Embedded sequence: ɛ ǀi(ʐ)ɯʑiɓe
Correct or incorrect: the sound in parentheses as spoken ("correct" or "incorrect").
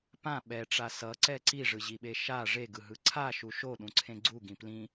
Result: correct